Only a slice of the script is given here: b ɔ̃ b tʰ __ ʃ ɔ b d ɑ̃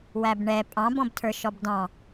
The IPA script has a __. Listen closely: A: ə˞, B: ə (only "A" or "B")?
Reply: A